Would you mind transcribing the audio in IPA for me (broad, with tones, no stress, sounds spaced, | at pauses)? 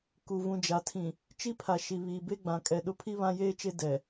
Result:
k u˨ v ũ˨ d͡ʒ a˨ tʰ ĩ˨ | t͡ʃ i˦ pʰ a˨ ʃ i˨ β iː˨ b e˦ ɡ͡b ã˨ kʼ ɛ˨ ɗ ʊ˦ pʰ i˦ β ã˦ j eː˦ t͡ʃ e˦ d ɛ˨